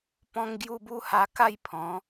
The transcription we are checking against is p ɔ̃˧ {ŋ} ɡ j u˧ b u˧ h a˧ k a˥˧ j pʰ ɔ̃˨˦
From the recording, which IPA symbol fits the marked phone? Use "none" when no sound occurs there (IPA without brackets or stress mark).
ŋ